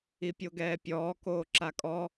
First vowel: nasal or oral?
oral